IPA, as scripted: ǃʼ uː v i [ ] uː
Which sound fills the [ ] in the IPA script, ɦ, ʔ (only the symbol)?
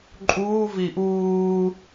ʔ